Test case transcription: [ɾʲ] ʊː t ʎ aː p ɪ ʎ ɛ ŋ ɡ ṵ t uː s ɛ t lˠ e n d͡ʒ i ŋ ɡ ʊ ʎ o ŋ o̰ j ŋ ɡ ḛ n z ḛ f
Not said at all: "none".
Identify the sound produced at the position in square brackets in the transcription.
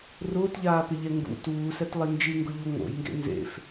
r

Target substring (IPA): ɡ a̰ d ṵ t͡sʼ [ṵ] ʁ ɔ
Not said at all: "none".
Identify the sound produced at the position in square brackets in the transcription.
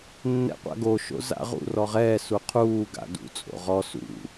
o̰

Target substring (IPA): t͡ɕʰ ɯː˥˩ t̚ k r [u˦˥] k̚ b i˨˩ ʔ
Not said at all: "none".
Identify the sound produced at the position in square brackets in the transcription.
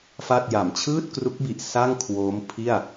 u˦˥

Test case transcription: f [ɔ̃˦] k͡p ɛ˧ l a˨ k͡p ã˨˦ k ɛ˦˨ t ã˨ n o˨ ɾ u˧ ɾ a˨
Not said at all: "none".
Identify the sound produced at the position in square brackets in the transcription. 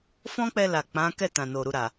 ɔ̃˦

